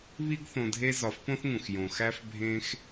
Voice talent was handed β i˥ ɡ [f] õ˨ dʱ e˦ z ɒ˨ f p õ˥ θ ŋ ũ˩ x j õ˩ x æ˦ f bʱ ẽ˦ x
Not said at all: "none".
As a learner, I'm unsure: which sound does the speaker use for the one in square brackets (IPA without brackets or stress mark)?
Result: θ